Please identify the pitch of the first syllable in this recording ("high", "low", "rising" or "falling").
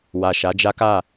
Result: low